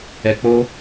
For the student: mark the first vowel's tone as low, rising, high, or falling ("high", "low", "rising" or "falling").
low